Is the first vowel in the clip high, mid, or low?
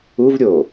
high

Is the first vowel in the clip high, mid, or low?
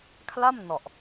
low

